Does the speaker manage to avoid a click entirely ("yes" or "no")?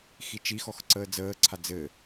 no